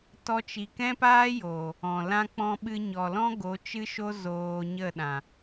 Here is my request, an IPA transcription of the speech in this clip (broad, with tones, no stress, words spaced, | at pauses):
tɔ˦t͡ʃi˧ kɛ̃˦paː˦joː˨ | ɔ̃˨lã˦k͡pɔ̃˦ ɓɨ˧ɲɔ˨lɔ̃˦ ɡo˨˦t͡ʃɨ˦ʃo˦ zoː˧ɲə˦˨ ɗã˨